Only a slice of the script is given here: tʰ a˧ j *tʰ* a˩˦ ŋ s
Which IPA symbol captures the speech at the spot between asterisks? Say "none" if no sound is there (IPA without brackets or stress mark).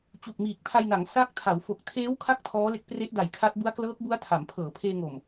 n